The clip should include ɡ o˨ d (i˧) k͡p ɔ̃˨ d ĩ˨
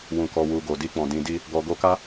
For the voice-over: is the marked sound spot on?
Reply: yes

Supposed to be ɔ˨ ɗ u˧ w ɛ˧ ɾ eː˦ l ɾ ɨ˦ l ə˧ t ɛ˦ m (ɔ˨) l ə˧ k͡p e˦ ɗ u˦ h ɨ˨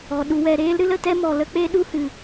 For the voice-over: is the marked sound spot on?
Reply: yes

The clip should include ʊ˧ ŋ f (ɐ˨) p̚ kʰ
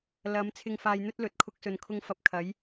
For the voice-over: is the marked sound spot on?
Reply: no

